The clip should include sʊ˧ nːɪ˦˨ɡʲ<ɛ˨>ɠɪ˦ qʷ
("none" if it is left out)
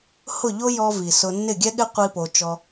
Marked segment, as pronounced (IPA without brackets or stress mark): ɛ˦